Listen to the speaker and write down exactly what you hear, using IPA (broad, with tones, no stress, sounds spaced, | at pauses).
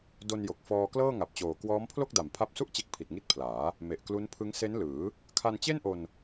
d o˧ n j o˨˩ k̚ f ɔː˧ k l ɤː˥˩ ŋ a˨˩ p̚ t͡ɕ oː˨˩ k w ɔː˦˥ m pʰ l o˥˩ k̚ d a˨˩ m pʰ a˦˥ p̚ s u˥˩ ʔ t͡ɕ e˦˥ k̚ pʰ i˨˩ t̚ ŋ i˦˥ t̚ pʰ l aː˩˦ | m e˨˩ ʔ k l u˦˥ n pʰ ɯ˦˥ ŋ s e˦˥ n l ɯː˩˦ | kʰ a˧ n t͡ɕ e˥˩ n ʔ o˧ n